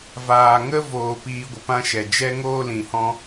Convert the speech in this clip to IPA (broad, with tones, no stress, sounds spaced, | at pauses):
v aː˨ ŋ ə˦ v oː˨ p iː˧ ɡʷ ə˨ p ã˦ ʃ ɛ˨ d͡ʒ ɛ˦ ŋ oː˦ l ĩ˨ h ɔ̃˦